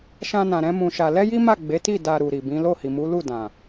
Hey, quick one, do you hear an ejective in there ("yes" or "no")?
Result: no